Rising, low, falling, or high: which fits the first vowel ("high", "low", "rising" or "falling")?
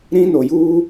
high